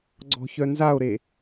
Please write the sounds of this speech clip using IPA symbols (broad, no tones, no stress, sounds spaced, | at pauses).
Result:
ɡ͡ǀ ɔ̤ ç œ n z a o̯ ɾ e